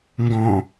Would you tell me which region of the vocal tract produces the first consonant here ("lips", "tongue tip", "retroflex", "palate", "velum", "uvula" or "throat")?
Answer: velum